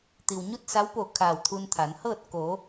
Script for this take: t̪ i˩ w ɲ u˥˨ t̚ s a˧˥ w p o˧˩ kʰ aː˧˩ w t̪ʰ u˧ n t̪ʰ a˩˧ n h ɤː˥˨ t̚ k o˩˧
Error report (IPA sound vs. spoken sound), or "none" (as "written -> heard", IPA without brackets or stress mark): none